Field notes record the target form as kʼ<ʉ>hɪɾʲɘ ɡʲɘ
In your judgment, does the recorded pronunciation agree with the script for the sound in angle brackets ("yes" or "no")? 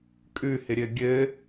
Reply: yes